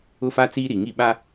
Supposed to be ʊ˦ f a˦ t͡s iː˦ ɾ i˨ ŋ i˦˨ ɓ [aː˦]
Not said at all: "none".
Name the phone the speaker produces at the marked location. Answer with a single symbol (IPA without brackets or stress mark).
a˦